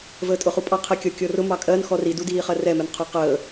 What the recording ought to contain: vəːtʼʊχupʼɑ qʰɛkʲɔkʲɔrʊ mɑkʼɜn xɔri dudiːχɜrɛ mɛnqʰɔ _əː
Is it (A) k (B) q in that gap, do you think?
B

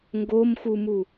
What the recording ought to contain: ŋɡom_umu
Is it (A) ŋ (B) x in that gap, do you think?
B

